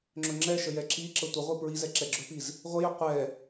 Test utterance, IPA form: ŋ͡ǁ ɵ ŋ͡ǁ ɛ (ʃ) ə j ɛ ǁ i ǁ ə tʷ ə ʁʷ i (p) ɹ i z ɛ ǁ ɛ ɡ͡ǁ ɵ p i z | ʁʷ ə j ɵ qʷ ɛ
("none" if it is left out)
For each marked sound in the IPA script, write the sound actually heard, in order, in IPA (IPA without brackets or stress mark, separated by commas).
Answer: ʃ, p